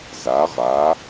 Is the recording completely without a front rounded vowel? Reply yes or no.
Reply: yes